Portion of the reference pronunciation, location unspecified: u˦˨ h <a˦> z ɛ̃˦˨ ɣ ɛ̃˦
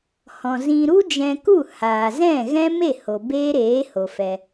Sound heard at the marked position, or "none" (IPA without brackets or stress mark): a˨